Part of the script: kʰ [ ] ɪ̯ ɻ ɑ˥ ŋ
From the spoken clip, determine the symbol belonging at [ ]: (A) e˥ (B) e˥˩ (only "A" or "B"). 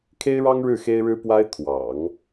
A